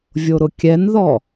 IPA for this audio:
vʲoɾʊkʲɛnðɔ

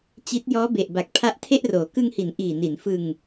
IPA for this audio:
t͡ɕi˦˥t̚ jɔː˦˥be˨˩ʔba˨˩k̚ pʰa˦˥ʔtʰe˥˩ʔroː˩˦ kɯ˧ŋhi˩˦n ʔiː˨˩ni˩˦nfɯ˧ŋ

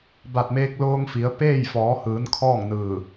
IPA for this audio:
ba˧˩t̚meː˧k̚loː˧ŋfi˩˧ə̯ peː˥˨j fɔː˩˧hɯː˩˧n kʰɔː˥˨ŋnɯː˧˩

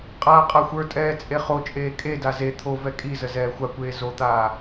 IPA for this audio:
qʼaːqʼaxʷə˞tʼɛː t͡sʼeχot͡ʃʼeː kʼeda ze t̪ʰovɛ kʼizə zɛːxʷakʷeː zot̪aː

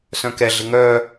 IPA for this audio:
sœ̃kɛɮɪ ŋœ

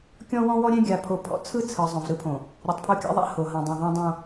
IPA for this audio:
kʲɔ̃˦wɔ̃˦wɔ˦ɾʲɛ̃˦ ɡʲa˨pʰo˨pʰɔ̰˨ t͡sʰɯ˦t͡sʰɯ˨ zˤõ˨vɾɯ˦pʰõ˨ | ɾʲɔ˨tˤpʰo˦kʲa̰˦ðˤa̰˦ ho˨ ɦã˨dˤõ˨ðˤẽ˦dˤõ˦

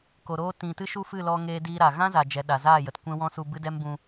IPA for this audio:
ko˨ɾoː˧ tĩ˨tɨ˧ ʃu˦fɨ˦˨lɔ˧ ŋeː˧diː˧ɾa˨ ɣã˦za˨d͡ʒɛ˨ ɗa˨zaː˦˨ jə˨tkʷɛ̃˦wɔ̃˦su˧ bɨ˦dɛ˦mbũ˧

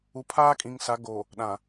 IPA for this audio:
u˨pʰaː˦kʼĩ˨ŋsa˨˦ ɡo˨ | ɗã˨

